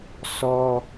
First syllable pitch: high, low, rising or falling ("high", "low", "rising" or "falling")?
high